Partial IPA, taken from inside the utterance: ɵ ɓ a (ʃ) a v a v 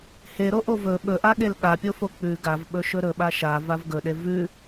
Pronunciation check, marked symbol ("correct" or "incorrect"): correct